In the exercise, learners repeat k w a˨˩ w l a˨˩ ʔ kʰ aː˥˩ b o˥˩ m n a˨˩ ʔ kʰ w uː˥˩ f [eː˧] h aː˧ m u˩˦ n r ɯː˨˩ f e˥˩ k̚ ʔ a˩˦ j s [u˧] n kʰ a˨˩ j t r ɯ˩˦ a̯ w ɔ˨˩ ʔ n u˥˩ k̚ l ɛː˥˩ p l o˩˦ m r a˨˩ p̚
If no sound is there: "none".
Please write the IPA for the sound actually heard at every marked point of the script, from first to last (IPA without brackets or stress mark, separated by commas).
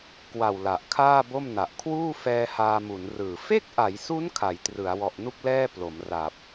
ɛː˧, u˦˥